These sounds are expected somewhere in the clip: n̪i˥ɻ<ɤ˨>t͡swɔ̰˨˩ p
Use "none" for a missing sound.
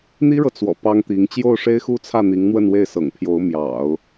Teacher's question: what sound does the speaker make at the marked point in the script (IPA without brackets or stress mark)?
ɤ˨